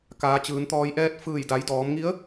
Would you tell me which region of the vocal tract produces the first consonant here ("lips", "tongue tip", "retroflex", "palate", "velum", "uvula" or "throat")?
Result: velum